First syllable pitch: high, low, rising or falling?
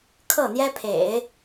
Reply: falling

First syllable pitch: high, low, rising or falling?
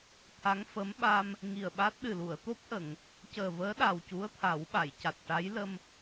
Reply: rising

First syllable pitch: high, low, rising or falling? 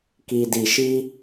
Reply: low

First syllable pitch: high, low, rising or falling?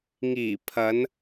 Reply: low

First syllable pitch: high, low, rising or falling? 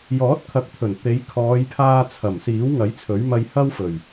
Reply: rising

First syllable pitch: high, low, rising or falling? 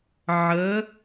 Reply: rising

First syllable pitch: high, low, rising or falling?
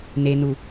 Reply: low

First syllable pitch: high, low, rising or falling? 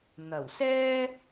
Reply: low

